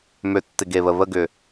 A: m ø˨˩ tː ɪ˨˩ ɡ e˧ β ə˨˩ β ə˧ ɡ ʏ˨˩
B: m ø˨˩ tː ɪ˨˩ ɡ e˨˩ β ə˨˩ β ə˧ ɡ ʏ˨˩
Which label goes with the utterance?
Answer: B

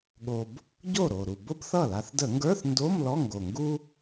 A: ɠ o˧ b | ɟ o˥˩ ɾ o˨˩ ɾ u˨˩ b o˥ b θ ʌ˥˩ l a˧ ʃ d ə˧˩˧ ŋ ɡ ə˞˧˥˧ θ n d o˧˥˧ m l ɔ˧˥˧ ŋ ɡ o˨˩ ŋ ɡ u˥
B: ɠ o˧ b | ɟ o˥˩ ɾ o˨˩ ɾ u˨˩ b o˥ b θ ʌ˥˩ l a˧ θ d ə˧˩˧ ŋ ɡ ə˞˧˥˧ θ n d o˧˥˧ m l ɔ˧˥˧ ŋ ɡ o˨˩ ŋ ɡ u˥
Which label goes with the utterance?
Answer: B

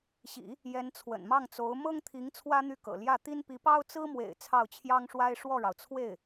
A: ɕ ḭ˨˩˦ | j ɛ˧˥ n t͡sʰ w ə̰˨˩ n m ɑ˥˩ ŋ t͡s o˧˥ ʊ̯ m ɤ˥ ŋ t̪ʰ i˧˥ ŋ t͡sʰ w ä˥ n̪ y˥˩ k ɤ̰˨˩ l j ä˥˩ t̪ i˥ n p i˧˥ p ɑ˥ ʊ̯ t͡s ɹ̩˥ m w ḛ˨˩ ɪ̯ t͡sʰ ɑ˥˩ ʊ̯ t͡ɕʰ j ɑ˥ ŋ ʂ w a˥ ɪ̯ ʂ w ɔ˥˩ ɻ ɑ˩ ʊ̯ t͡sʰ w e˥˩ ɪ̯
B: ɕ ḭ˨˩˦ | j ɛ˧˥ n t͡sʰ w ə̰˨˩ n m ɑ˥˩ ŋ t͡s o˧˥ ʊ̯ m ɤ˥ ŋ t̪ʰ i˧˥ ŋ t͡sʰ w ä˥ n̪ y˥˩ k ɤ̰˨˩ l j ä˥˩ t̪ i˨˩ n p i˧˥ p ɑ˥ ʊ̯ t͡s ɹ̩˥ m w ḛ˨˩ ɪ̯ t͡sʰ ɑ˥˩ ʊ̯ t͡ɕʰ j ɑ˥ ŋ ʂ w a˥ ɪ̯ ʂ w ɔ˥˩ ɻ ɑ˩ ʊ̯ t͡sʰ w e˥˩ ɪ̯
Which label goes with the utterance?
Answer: A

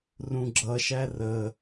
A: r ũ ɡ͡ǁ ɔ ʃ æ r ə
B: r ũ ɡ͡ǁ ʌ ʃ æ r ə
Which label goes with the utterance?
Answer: B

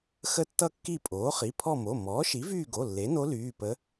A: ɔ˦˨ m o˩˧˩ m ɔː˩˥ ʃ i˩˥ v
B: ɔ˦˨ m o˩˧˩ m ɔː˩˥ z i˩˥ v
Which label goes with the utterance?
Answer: A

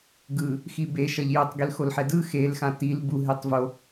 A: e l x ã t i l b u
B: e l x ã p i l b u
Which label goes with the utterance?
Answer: A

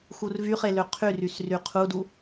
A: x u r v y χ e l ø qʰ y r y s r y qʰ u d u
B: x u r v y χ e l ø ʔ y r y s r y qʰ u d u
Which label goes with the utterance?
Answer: A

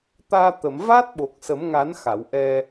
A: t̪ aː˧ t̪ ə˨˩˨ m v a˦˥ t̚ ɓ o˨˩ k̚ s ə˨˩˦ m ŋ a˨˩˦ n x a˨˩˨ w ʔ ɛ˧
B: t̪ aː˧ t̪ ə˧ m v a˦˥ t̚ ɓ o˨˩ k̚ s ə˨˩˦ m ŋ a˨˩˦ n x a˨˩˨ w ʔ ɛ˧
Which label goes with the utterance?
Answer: A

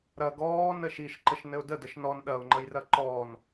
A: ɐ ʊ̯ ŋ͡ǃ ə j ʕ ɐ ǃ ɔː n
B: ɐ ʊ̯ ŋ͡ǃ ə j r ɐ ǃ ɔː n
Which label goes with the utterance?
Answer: B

